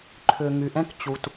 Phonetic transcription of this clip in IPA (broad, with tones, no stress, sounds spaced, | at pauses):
ǃʰ ʏ˩ ŋ y˩ ʔ ɛ̃˧ k t͡ɕ u˩ t